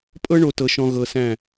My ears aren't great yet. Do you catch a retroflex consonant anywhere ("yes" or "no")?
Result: yes